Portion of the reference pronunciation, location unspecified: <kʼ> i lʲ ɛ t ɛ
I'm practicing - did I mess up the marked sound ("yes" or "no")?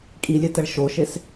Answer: no